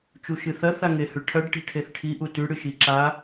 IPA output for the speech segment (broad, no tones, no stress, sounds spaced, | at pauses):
t͡ʃ u ʃ ɨ θ ɐ θ a ŋ e h ʉ ʈʰ ɐ ɖ ʈ i̤ ʈʰ e θ ʈʰ i ʔ u t ʉ ɽ ɨ ʃ i ǁ a